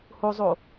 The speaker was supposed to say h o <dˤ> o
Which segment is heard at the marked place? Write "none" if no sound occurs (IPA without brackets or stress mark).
zˤ